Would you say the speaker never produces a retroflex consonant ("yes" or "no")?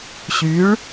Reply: no